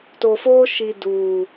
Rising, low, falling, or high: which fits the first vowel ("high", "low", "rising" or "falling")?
low